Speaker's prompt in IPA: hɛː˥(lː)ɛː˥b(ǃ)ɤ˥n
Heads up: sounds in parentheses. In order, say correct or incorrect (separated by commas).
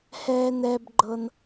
incorrect, incorrect